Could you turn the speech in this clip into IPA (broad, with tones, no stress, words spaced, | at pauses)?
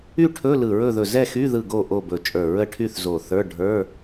y˥˨ʈʰɵ˧˥˧ lɯ˧˩ɹɵ˥˨ðɵ˧˩ zɛ˥˨xy˧˥˧ ðɯ˥˨ɡo˥˨ ʔo˥˨bɵ˧˩t͡ʃʼə˞˧˩ ɹə˥˨ʈʰy˥˨θzo˧˩θə˞˧˥˧ ɖʱə˞˧˥˧